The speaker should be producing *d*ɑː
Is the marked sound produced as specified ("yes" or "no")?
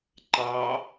no